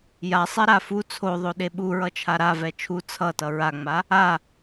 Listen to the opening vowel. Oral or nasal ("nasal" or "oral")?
oral